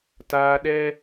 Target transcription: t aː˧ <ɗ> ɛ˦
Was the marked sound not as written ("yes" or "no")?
no